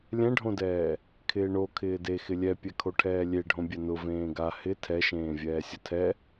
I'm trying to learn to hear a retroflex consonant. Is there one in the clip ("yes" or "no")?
yes